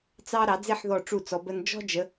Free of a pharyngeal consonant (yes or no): no